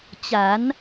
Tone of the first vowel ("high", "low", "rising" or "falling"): rising